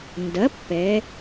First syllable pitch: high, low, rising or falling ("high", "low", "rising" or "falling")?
rising